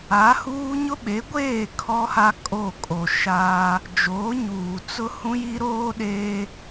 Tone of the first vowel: rising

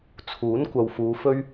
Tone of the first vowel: rising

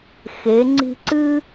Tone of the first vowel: rising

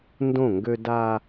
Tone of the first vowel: falling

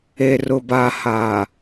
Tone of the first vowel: low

